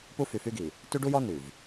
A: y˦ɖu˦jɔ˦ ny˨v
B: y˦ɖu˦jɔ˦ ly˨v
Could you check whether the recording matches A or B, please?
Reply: A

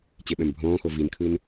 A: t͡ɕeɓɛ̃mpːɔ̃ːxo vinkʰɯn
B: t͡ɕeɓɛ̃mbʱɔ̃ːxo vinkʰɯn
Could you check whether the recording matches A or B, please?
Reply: B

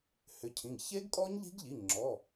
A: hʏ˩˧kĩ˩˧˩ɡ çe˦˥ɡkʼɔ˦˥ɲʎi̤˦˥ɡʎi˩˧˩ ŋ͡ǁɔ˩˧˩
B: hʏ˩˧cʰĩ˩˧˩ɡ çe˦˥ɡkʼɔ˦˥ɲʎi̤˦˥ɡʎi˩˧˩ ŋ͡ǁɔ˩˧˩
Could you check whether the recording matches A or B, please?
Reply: B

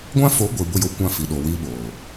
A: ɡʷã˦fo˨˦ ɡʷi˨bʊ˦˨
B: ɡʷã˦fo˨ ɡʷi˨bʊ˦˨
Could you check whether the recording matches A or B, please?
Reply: A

